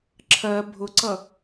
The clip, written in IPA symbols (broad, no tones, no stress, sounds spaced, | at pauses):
ǁʰ ɜ bʱ ʊ ǀ ʌ